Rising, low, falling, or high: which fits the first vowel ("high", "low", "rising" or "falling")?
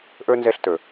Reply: high